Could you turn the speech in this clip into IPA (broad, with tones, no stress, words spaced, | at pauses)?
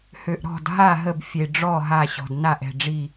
hø˩ʔ ɾɔ̤˥˩dɦa˥˩ ɦə˥˩bfʲe˩ɖ͡ʐɔ˥˩ɦa˧˩ ɕɔ̤˩dna˥˩ʔ ɛ̤˥˩ɖ͡ʐi˥˩